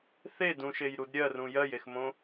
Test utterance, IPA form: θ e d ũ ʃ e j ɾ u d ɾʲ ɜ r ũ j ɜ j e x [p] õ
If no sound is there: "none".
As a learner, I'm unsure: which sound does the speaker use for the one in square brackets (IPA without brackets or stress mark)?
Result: m